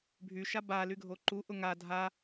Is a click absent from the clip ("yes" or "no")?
no